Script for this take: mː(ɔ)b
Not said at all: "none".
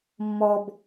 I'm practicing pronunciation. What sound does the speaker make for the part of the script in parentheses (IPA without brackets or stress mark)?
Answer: ɔ